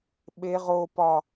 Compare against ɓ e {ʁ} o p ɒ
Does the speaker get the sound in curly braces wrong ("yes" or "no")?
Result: no